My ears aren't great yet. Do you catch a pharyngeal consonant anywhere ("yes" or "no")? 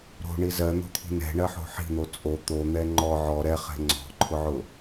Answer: yes